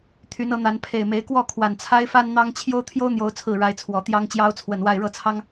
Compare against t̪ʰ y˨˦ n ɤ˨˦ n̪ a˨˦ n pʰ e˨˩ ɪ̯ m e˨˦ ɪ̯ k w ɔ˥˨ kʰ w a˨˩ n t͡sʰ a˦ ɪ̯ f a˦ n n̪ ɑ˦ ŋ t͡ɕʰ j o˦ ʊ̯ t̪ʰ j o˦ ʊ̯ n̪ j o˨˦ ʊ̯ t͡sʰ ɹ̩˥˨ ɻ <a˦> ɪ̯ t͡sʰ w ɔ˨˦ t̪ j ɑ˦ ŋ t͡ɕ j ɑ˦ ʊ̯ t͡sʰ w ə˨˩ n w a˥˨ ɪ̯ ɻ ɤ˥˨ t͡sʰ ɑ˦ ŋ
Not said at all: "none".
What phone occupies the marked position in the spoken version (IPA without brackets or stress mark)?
a˦